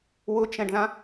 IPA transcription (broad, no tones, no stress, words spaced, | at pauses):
wʊt͡ʃɛ̃ɖðã